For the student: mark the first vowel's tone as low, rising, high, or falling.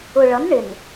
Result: low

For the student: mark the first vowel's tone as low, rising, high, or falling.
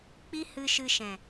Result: high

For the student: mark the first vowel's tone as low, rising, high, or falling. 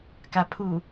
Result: low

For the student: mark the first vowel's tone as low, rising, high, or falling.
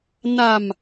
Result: low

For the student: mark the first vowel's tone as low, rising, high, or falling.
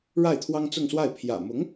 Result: falling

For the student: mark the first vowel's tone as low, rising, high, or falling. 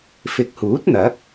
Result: rising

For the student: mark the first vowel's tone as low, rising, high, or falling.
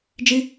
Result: high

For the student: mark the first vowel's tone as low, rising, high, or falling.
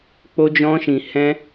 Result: high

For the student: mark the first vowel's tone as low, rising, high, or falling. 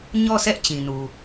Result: falling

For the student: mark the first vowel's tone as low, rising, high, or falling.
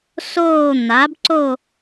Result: falling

